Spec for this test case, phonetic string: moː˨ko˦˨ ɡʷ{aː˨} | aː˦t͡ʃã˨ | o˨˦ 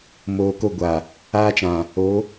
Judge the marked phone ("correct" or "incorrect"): incorrect